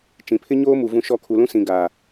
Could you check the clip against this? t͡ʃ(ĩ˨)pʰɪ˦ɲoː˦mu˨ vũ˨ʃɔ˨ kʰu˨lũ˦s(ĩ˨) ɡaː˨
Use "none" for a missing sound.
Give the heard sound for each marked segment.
ĩ˨, ĩ˨

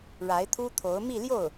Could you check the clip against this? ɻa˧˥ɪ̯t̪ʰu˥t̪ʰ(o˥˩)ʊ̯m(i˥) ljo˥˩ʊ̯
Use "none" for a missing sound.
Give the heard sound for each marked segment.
o˧˥, i˥˧

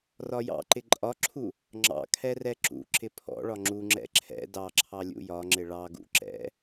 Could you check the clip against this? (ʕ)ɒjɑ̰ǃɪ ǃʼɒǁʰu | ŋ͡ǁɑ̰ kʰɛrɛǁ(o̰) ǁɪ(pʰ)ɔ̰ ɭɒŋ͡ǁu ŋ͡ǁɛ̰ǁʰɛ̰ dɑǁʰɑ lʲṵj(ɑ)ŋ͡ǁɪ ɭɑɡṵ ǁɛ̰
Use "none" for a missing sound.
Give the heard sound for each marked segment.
r, ṵ, pʰ, ɒ

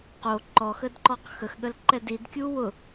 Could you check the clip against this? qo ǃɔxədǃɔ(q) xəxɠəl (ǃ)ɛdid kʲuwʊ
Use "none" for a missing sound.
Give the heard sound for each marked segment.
q, ǃ

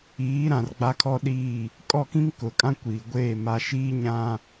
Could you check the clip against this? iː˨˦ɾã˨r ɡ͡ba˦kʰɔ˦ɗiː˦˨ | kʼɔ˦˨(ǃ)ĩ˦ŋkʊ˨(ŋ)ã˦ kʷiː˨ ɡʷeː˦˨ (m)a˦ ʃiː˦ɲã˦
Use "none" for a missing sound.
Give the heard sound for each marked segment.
k, kʼ, m

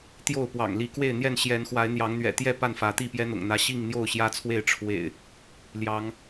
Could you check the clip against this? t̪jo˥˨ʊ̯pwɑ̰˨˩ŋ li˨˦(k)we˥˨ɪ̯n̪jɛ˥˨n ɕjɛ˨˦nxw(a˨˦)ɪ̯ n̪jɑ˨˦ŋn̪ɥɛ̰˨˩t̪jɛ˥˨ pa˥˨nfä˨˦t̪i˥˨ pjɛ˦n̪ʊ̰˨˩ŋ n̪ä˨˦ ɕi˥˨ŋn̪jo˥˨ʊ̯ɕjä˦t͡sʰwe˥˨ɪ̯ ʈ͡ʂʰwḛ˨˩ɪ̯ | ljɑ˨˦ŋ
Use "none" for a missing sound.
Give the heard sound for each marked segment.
k, a˨˦

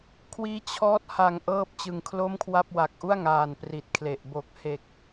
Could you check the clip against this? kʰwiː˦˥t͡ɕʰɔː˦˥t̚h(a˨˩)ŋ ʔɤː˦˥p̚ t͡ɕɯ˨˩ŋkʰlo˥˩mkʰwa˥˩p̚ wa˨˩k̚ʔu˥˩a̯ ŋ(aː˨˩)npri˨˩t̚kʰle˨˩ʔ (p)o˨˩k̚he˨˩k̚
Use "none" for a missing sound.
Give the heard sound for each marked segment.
a˨˩, aː˨˩, b

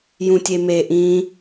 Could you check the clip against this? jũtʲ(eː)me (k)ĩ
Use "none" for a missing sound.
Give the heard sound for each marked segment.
e, ʔ

